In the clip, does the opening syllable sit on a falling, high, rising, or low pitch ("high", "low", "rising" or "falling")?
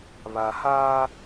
low